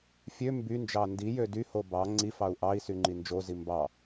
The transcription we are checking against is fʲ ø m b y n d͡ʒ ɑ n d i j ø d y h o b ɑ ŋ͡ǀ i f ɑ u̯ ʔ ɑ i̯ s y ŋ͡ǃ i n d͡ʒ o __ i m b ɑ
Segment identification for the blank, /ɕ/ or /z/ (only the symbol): z